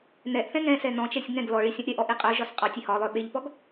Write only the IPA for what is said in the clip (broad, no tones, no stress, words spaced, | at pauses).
nɛʔθɛ̃ ŋɛ̃sɛ nɔ̃t͡ʃɛsʲ ŋɛ̃ɡ lɔɭi sʲɔ̃ʔɾʲɛʔɔ ʔiqʼœʒɒs qʼɒ tʲehɒlˠœ ɓeʎpɔɡ